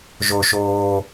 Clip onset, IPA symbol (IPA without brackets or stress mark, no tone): ʒ